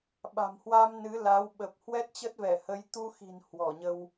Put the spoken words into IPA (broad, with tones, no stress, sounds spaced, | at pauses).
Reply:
ɓ a̤˨˩ m h w a˧ m n ɨ˨˦ l a˨˦ w ɓ ə˨˩ p̚ h w ɛ˦˥ t̚ t͡ɕ ə˦˥ t̚ v ɛ˧˩ h ə˨˦ j t̪ u˧ x i̤˨˩ n h w ɔ˧˩ ɲ ə˧ w